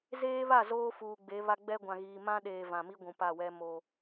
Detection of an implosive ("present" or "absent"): present